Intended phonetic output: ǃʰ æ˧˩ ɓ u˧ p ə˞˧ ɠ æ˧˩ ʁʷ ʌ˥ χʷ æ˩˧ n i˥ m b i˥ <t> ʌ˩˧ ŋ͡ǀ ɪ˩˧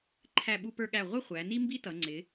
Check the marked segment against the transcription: correct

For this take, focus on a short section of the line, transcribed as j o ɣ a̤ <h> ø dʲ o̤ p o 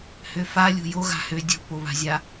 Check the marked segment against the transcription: correct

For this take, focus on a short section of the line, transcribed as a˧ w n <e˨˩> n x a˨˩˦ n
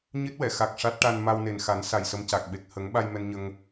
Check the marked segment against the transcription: correct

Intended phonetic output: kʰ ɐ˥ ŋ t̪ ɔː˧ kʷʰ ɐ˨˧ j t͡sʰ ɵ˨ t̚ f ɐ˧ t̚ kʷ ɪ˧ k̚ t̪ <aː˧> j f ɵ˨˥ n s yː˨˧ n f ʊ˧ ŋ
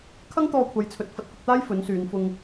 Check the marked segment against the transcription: incorrect: aː˥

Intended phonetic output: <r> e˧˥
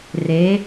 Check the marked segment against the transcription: correct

